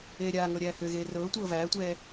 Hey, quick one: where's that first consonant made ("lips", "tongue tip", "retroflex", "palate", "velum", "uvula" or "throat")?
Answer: tongue tip